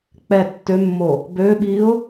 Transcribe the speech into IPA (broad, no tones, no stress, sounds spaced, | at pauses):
k͡p ɛ tː ø mː o | b ø ɓ i ʊ̯